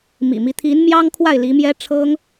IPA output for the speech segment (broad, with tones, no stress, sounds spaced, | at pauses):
m ḭ˨˩ m i˦ t̪ʰ i˧˥ n m j ɑ˥ ŋ kʰ w a˥˩ ɪ̯ l i˧˥ m j ɛ˥ ʈ͡ʂʰ ɤ˥ ŋ